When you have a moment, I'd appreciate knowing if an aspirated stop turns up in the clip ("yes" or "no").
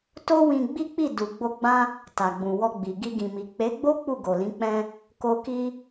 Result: no